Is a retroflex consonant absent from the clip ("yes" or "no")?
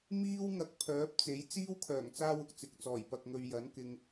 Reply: yes